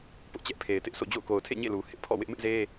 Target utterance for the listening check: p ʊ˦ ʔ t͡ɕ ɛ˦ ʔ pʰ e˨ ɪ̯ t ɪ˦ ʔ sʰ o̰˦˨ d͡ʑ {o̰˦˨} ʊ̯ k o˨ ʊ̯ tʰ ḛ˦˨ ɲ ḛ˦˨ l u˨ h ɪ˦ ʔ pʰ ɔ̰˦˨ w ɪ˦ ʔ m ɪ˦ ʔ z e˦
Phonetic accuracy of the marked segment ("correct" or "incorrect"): correct